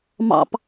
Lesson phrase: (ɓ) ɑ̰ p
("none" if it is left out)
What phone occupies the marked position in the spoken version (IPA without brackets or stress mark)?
m